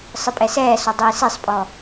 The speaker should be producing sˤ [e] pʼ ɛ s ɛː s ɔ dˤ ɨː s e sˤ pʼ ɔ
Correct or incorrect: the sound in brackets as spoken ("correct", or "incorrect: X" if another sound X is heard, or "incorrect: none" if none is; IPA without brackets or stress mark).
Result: incorrect: ɨ